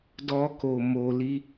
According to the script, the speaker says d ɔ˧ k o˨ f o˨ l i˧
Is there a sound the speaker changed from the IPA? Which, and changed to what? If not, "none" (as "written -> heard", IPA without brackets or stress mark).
f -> m